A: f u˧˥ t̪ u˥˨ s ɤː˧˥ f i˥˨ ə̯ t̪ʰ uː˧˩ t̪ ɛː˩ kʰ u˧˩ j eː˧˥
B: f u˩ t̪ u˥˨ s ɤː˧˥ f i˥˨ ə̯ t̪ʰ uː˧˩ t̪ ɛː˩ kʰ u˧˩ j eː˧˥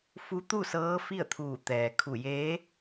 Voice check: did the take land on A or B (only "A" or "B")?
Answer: A